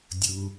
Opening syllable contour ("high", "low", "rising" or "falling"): low